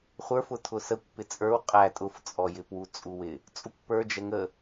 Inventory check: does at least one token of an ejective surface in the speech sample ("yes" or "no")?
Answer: yes